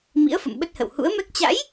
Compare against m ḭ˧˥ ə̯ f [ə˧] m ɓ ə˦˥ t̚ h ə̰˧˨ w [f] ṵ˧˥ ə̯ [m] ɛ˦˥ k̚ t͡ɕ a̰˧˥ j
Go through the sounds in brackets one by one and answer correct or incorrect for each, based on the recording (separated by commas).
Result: incorrect, incorrect, correct